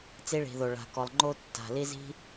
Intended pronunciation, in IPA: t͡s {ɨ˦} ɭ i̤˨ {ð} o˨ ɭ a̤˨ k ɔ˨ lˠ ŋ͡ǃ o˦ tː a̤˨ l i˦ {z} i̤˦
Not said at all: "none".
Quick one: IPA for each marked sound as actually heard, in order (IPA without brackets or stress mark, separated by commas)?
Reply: i˦, ð, z